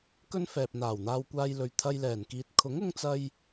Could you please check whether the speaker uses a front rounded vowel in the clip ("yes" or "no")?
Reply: no